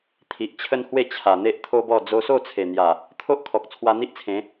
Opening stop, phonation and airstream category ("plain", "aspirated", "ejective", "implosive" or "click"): aspirated